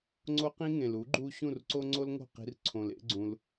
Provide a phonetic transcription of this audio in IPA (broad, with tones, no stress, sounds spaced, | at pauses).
ŋ͡ǀ o˦ q ĩ˦ ŋ ẽ˨ l u˨˦ ɡ͡ǃ u˦ ɕ ũ˦˨ r ǀ o˦ ŋ͡ǀ o˦ l ŋ o̤˦˨ q i̤˧ r ǀʰ õ˨ l ḛ˦ ɡ͡ǀ ũ˧ l